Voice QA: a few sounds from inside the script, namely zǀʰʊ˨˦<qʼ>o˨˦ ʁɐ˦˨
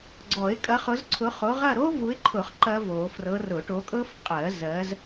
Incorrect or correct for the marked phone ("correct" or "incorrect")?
incorrect